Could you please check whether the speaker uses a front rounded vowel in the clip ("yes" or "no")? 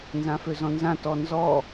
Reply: yes